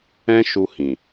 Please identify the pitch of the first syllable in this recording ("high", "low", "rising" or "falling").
high